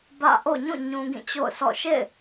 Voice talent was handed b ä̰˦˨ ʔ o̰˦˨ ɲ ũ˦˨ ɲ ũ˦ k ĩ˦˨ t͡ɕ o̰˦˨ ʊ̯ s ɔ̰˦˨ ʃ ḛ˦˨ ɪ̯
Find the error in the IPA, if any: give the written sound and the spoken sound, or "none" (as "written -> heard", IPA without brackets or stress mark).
k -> ɡ